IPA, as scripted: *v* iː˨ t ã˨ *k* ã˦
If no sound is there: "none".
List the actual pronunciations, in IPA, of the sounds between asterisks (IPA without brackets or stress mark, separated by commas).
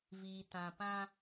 v, p